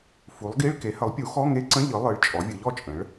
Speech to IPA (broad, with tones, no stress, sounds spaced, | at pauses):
f u˩˥ lˠ ɡ i˧˥˧ ɭ k e˩˥ h ə˩˥ lˠ pʲ u˩˥ x ɔ˧˥˧ ŋ e˧˥˧ ǀ ə̃˧˥˧ ʎ ɯ˩˥ lˠ ɯ˩˥ ɭ t͡ʃʼ ɔ˩˥ vʲ ɯ˩˥ ʎ ɔ˩˥ t͡ʃʼ ə̃˩˥ ɭ